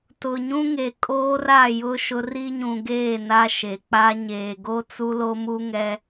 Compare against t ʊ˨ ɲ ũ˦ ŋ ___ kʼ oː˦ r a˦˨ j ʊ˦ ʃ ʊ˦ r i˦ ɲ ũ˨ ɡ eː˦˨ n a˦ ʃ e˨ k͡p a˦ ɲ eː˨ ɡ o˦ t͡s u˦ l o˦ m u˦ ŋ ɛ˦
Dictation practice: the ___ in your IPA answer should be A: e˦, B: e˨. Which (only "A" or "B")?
B